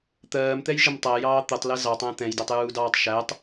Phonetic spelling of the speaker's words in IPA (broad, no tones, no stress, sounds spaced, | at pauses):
t̪ ɜː m t̪ ɛ j ʒ ə m tˤ æ j ɑː t̪ ə tˤ l ɛ z ɑ tˤ æ̃ t̪ ɛ̃ j d æ tˤ j uː d ɑː tˤ ʃ æ tˤ